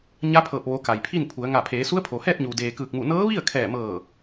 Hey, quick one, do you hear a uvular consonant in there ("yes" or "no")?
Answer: no